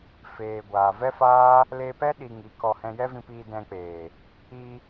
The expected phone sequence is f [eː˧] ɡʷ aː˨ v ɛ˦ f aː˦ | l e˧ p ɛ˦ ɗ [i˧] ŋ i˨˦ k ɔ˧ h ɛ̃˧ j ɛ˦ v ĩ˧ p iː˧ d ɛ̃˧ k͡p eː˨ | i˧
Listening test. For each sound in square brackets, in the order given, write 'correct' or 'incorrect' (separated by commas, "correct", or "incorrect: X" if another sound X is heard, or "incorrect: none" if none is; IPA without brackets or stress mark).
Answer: incorrect: eː˨, correct